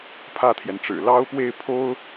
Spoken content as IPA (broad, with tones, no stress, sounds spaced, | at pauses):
pʰ ä˥˩ t̪ʰ j ɛ˩ n ʈ͡ʂ ɻ̩˨˩ l ɑ˥ ʊ̯ p w e˥˩ ɪ̯ pʰ o˥ ʊ̯